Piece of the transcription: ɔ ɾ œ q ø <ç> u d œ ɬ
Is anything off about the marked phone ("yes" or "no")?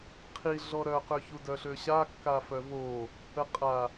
no